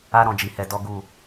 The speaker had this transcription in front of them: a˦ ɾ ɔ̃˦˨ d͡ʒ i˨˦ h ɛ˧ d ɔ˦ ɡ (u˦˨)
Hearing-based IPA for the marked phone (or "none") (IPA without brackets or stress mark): u˦˨